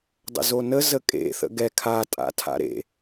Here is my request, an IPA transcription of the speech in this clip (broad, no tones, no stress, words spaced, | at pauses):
dˤə̰zonə zəkʼḛ θə̰ɡɛ kʰa tʼa̰tʰa̰ɾḛ